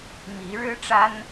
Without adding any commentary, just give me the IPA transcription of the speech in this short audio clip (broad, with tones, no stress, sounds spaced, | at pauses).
m i˨˦ ɻ ɻ̩˦ ʈ͡ʂ a˦ n